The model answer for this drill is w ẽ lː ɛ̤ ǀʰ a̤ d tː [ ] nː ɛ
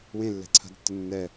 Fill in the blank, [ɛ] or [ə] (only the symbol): ə